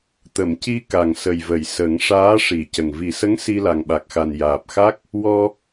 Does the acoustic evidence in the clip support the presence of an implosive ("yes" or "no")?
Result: yes